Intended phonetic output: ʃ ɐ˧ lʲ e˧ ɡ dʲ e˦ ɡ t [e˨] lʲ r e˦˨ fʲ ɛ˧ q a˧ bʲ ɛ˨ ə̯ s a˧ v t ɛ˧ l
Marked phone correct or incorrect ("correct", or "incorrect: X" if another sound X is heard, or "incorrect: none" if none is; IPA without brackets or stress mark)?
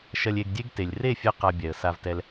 correct